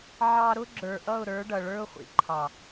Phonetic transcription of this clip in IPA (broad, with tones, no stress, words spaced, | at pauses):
ʕɑ˧ɾʊ˦ ɡ͡ǁə˞˨ʔʌ˦˨ʊ̯ɾə˞˨˦ ɖʌ˨ɭə˞˦ʊ̯χʷḭ˨ ǃʰɑ˨